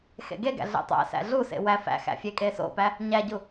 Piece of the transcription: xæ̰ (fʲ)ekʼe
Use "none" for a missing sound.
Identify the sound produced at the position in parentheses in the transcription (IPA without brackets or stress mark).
fʲ